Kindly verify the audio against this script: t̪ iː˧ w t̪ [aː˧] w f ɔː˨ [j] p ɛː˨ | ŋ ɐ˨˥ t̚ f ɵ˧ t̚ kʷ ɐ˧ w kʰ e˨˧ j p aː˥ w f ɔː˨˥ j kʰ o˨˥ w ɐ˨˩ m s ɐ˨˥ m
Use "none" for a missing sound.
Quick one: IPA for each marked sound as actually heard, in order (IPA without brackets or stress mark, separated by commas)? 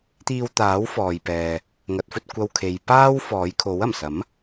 aː˨˥, j